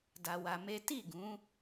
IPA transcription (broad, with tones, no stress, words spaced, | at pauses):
da˧wa˧me˦ ti˦˨ɡũ˨˦